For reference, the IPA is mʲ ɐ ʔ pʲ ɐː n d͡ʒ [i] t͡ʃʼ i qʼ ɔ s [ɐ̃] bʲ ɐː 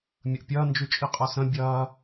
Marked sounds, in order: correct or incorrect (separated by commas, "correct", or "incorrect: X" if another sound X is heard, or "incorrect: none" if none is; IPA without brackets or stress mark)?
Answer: incorrect: y, correct